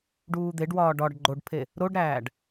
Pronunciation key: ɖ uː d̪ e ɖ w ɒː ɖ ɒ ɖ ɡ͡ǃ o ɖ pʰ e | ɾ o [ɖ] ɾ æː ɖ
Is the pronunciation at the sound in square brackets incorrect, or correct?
correct